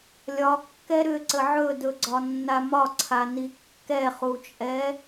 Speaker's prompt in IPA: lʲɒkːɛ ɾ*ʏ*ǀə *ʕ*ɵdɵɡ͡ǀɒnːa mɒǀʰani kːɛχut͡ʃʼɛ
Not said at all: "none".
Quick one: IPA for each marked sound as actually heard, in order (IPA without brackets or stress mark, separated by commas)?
ʏ, ʕ